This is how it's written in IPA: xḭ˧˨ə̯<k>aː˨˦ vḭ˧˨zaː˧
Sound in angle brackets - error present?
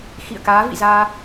no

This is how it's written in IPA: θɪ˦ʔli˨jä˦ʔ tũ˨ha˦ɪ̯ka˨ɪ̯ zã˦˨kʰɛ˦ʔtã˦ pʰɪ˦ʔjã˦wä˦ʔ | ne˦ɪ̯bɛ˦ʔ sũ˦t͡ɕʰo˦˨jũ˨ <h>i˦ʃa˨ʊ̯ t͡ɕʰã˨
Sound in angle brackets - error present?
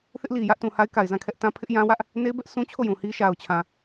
no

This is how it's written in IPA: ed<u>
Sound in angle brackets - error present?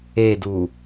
no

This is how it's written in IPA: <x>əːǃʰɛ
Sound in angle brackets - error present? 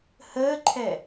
yes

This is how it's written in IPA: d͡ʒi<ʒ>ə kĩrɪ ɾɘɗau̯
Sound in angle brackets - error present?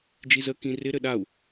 yes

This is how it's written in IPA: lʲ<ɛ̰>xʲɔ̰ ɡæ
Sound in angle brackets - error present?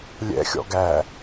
no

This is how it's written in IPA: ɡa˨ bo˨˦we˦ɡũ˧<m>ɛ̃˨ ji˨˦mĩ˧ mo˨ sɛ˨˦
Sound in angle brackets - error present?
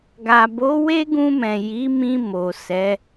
no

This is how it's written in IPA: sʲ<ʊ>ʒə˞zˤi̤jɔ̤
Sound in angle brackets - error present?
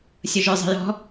no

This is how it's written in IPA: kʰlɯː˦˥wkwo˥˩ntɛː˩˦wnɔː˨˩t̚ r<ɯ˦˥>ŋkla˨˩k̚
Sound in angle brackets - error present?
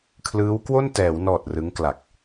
no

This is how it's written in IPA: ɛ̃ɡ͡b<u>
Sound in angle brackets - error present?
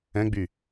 yes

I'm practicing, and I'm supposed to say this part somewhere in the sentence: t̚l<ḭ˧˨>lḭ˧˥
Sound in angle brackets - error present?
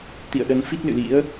yes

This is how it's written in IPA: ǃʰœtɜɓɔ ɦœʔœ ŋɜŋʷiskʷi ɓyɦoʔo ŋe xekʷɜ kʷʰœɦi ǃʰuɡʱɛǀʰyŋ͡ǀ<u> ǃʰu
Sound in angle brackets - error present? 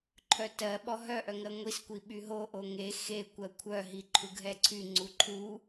no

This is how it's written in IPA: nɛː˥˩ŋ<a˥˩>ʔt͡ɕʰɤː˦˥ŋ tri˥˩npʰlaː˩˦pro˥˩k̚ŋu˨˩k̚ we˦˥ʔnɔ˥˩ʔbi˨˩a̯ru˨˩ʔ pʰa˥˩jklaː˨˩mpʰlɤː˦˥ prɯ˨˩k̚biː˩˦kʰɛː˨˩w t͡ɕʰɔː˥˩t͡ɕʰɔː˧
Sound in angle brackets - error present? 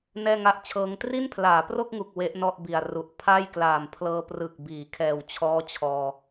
no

